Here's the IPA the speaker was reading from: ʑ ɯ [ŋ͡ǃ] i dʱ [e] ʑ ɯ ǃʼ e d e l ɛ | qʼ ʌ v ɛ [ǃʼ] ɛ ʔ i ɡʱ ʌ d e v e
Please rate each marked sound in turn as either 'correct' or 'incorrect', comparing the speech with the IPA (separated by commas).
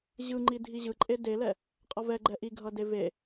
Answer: correct, incorrect, incorrect